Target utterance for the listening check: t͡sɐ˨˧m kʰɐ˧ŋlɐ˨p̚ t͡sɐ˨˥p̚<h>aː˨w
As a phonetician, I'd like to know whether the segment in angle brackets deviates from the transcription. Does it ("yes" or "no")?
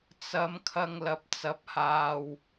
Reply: no